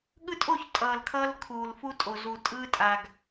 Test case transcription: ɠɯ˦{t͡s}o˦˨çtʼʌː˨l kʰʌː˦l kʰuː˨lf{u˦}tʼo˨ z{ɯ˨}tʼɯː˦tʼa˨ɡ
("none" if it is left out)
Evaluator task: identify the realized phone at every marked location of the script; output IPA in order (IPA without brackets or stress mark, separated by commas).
tʼ, u˦, u˨